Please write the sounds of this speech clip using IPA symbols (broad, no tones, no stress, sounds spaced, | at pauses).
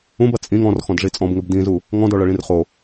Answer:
ũ b ɐ t͡sʼ ĩ ŋ ɔ̃ r x ɔ̃ d ʐ i t͡sʼ ɔ̃ b ŋ ɘ b d ĩ z u | ŋ ɔ̃ d ɔ ɭ ɐ ɭ ĩ r χ o